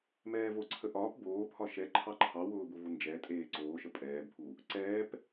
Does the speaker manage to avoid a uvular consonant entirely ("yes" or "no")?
yes